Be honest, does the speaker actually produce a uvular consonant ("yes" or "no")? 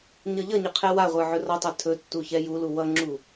yes